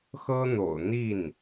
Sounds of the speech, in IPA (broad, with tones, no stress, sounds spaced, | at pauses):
x ɤ˥ n̪ o̰˨˩ ʊ̯ n̪ i˥˩ n